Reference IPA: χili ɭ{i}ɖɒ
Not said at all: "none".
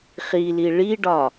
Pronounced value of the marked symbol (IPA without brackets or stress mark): i